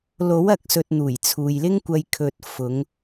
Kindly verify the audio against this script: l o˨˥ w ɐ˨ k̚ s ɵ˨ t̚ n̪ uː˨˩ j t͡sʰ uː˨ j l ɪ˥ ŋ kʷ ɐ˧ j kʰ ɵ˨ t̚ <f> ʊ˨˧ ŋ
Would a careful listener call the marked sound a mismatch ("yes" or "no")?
no